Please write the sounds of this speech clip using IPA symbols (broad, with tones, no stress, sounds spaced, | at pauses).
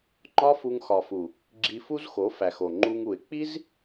ŋ͡ǃ ɒ˦ f u˧ ŋ x ɒ˨ f u˨ | ɡ͡ǁ i˧ f u˦ z x o˨˦ f æ˨ x o˨ ŋ͡ǃ u˧ ŋ u˨ ɪ̯ k͡p i˦ z